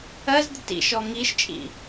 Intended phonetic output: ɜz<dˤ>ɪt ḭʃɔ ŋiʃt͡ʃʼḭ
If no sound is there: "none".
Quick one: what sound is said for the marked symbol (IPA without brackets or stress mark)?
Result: d̪